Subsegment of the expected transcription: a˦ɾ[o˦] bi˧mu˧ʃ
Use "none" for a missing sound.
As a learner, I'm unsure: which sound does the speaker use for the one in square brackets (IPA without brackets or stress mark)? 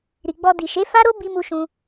o˦